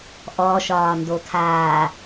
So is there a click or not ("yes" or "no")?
no